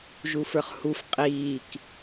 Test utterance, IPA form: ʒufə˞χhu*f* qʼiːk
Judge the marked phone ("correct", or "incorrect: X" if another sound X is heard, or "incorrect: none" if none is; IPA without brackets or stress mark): correct